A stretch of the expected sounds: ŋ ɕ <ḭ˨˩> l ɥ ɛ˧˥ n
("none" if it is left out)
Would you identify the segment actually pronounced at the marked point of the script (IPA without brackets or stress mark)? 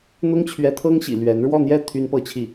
ḭ˨˩